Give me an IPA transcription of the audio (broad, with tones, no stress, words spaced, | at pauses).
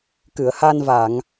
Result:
kɨ˨˩˨ə̯ha˧nva˨˩˨ŋ